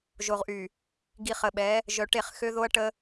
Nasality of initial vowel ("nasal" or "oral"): oral